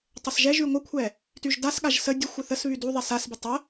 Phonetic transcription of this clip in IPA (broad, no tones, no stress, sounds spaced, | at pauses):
tˤ ɘ s ʒ ɛ ʒ y ŋʷ ə kʷʰ ɛ | t y ʒ d a s ɠ a ʒ s ə dʲ ə xʷ ɘ θ ə s β y d u ðˤ ɛ s a s b ɛ tˤ ə